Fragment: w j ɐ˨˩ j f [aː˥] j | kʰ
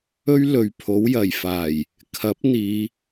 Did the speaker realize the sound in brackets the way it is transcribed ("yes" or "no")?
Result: no